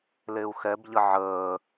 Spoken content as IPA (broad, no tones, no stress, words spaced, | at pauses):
leu̯xɛbʎə ʕəː